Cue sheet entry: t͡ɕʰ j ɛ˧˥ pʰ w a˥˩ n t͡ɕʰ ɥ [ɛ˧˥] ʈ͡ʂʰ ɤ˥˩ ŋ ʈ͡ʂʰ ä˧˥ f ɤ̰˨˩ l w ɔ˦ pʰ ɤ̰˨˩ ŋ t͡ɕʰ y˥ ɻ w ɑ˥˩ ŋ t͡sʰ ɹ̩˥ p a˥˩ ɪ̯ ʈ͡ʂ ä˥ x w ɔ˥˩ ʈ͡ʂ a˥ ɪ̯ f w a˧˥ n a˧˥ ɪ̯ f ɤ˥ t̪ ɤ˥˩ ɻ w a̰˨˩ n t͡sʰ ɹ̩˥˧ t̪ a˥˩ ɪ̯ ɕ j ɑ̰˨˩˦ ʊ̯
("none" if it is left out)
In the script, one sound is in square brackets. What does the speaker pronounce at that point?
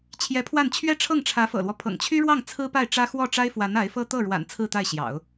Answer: ɛ˥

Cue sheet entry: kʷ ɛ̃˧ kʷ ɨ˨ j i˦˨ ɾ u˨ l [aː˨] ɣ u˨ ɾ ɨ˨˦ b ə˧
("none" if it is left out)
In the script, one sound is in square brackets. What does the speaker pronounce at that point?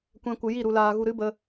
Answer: aː˨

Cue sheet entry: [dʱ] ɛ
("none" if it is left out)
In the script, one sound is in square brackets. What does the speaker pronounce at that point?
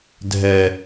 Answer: dʱ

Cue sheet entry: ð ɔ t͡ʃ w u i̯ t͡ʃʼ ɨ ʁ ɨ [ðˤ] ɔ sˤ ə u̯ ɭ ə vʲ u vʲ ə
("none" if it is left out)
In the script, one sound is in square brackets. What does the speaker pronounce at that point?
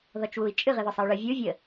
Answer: ð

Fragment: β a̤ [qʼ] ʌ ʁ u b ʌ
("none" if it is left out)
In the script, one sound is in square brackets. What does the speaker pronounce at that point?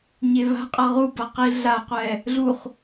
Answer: qʼ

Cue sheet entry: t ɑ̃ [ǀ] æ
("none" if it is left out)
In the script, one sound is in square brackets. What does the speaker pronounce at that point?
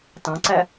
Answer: ǀ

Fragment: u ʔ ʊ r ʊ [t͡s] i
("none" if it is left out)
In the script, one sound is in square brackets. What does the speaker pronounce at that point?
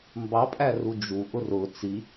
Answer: t͡s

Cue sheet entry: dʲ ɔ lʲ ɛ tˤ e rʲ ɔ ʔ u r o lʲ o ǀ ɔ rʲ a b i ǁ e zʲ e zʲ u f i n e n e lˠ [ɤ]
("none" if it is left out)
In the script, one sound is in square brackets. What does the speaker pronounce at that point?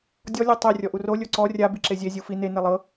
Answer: ɤ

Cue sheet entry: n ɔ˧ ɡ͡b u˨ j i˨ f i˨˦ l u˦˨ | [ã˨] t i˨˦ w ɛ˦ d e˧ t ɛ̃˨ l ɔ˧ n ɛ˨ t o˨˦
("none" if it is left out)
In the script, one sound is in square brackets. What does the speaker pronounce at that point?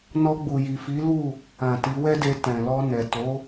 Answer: ã˨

